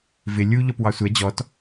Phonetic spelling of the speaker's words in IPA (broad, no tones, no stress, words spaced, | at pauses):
vɪ lʲu ʎɔpwɑsʷɛ d͡ʑɔt